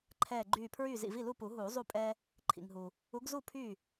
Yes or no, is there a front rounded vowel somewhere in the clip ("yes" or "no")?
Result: yes